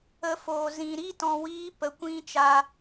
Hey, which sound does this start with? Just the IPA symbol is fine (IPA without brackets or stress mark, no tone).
ə